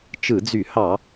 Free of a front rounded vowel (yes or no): no